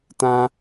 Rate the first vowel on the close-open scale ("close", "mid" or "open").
open